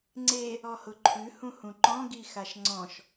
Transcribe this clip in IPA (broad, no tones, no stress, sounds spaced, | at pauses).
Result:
ŋ͡ǀ e | ɔ h ʊ ǃʰ ʉ h ũ h ũ ǃ ɔ̃ ɡ i x a ʃ ŋ͡ǀ ɔ̃ ʃ